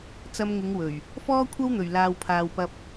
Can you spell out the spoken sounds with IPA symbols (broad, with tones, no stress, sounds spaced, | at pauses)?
t͡s ɐ˧ m ŋ ɪ˨˧ ŋ w ɵ˨˩ ɥ | f ɔː˥ kʷʰ ɐ˥ w n̪ ɵ˨˩ ɥ l aː˨ w pʰ aː˨ w p ɐ˧ p̚